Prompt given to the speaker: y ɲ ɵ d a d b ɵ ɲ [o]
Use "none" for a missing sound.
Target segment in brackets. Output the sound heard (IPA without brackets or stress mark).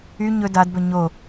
o